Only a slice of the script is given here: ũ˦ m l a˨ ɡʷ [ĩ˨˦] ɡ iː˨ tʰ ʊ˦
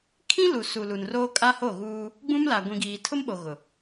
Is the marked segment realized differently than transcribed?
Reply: yes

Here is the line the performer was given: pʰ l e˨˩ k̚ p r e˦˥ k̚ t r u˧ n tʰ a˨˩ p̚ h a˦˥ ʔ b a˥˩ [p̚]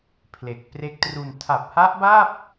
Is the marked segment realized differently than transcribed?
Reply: no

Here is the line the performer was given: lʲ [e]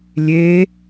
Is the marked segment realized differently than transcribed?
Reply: no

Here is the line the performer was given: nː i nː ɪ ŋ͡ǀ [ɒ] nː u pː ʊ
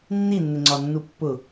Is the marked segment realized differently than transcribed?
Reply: no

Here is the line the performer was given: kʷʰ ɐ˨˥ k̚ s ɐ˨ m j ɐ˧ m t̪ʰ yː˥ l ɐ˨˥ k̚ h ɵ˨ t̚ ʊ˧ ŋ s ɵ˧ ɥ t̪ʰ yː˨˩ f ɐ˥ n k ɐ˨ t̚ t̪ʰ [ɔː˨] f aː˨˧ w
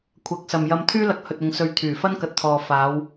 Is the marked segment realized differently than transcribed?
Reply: no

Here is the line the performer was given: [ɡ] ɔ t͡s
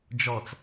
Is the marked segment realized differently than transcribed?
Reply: yes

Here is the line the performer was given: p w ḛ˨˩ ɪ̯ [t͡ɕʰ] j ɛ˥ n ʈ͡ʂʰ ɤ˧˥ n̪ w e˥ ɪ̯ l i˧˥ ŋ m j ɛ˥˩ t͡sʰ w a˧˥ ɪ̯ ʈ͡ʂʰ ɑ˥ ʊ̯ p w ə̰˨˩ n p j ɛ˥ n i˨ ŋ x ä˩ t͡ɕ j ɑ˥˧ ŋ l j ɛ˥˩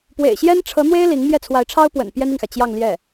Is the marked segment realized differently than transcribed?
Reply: yes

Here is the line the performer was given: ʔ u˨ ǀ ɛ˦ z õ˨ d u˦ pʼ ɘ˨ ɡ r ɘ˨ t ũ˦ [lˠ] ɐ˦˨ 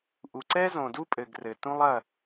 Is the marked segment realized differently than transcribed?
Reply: no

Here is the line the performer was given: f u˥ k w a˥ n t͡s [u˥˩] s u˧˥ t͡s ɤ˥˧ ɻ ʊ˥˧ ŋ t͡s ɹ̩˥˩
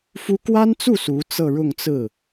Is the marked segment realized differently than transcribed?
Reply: no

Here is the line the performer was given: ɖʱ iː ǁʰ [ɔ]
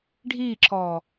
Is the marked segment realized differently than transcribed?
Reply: yes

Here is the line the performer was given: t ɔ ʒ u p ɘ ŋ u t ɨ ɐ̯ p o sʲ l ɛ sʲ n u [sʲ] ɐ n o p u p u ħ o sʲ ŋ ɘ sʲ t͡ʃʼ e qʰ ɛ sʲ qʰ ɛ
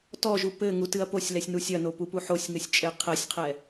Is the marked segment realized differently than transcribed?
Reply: no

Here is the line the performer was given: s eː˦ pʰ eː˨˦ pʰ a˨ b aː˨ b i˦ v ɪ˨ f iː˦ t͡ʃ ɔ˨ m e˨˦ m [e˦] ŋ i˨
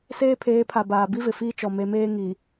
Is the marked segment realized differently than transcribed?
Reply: yes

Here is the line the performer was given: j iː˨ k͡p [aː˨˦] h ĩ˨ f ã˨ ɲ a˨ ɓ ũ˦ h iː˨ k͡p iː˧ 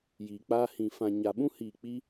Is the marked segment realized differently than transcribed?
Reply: yes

